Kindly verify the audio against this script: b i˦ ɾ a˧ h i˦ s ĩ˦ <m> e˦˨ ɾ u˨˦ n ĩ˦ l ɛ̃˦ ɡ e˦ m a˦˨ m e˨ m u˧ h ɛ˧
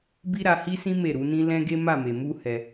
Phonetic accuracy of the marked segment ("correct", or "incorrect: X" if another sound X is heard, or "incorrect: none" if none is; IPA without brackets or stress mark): correct